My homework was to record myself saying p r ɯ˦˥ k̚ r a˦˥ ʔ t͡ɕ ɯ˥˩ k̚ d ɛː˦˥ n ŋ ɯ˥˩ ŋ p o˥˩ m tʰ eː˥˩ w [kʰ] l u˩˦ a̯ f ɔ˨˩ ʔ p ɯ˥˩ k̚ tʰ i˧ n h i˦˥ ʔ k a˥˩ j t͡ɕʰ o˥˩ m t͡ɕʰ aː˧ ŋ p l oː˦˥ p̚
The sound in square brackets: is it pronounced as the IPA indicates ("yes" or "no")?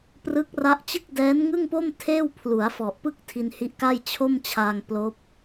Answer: no